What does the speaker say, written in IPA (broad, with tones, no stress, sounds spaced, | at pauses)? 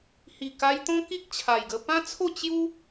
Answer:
h i˨˩ k a˧ j t̪ ɔ̃˦ k i˦ k̚ t͡ɕʰ a˨˩ j ɡ ə˧ p ã˦ t͡sʰ o˥˧ t͡ɕ j u˦